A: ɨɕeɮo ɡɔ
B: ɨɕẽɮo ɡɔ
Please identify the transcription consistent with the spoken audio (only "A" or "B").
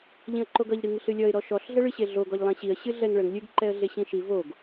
A